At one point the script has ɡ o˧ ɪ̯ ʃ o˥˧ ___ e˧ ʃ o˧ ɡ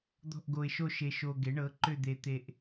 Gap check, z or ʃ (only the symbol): ʃ